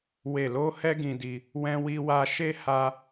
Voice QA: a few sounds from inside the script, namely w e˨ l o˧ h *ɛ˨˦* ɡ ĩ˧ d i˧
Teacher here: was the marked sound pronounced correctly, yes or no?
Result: no